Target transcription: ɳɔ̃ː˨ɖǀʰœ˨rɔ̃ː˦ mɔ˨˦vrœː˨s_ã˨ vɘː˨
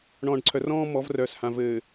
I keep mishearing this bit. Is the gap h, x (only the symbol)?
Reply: h